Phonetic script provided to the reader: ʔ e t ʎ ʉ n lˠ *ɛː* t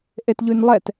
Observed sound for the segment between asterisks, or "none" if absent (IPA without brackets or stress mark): ɛ